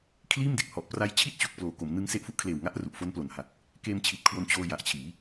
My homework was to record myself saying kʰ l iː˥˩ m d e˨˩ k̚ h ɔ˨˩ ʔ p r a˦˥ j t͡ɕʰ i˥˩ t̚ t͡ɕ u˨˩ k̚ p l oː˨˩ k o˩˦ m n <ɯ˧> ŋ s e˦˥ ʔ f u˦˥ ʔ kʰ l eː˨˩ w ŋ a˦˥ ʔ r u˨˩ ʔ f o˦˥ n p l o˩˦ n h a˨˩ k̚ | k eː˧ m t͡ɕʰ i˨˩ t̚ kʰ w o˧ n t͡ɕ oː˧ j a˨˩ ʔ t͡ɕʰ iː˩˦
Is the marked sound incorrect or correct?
correct